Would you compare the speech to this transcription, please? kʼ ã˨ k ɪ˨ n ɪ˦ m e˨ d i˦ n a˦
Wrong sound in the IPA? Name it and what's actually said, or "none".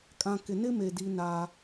none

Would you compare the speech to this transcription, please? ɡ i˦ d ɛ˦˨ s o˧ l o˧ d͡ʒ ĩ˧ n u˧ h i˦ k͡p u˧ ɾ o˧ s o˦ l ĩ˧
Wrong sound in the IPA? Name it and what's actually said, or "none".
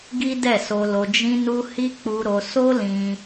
none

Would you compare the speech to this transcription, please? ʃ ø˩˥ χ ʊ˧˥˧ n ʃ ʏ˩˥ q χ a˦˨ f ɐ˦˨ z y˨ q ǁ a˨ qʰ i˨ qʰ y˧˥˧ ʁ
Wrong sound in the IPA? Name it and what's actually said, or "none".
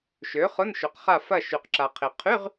z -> ʃ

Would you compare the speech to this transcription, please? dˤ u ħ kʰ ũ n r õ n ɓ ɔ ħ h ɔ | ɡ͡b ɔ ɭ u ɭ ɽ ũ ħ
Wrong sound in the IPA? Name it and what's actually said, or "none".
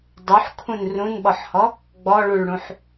õ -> ũ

